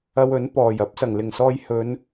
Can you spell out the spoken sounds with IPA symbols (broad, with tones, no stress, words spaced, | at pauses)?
ɐ˧wɵ˨˥n pɔː˨˩jɐ˥p̚ sɐ˨˩ŋlɪ˨˩ŋsɔː˧j hɵ˨˧n